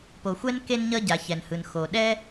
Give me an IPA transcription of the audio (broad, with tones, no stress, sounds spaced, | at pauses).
p o˩ xʷ ɛ˥ n k e˥ n ɲ ʌ˥ ɟ a˩ ç ɛ˩ n h ɯ˩ n x o˩ ɗ ɛ˥